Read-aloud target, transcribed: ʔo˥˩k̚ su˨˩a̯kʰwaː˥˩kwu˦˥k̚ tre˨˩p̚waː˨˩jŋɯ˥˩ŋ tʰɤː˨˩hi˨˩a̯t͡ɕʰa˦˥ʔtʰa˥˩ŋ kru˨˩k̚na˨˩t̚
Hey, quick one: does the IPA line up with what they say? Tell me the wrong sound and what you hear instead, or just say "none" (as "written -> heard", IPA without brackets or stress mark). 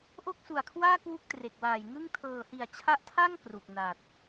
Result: p̚ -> k̚